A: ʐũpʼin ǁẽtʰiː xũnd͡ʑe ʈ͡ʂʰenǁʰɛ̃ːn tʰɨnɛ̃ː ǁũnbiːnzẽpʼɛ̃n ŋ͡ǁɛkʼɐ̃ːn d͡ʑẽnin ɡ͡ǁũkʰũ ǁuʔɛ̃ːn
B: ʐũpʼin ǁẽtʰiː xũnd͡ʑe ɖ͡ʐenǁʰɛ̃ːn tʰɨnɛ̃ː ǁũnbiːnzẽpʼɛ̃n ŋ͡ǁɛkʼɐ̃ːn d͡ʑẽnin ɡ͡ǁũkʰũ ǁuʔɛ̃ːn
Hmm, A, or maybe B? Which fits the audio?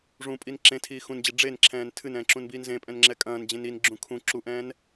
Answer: B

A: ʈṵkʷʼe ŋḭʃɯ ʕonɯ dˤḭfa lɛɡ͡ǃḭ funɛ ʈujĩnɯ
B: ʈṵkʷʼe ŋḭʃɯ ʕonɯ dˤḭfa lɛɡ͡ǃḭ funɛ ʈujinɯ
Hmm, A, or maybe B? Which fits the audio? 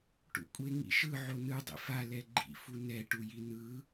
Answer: B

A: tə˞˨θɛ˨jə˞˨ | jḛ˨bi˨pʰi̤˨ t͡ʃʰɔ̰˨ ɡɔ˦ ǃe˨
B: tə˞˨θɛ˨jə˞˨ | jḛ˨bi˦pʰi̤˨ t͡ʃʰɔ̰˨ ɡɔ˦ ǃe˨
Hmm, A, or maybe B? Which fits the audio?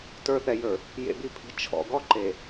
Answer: A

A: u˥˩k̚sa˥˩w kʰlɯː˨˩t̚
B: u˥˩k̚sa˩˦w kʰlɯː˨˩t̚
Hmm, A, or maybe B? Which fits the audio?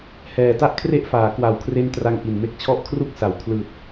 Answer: B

